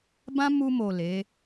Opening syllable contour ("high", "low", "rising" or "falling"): high